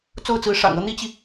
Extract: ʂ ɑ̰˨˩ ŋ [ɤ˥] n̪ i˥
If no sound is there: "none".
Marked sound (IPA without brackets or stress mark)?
ɤ˥